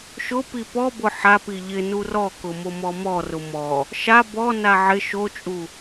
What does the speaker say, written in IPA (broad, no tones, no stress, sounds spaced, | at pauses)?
ʃ ʊ p i p ɔ b ʊ ħ a p i ʎ ɪ n u r ɔ k ʊ m o m ɔ m ɔ r ʊ m ɔ | ʃ a b ɔ n a ʕ ɪ ʃ o t͡ʃʼ u